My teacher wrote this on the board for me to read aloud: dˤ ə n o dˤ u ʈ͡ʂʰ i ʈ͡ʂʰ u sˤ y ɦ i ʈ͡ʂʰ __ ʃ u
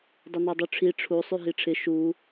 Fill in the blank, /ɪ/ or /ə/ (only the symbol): ɪ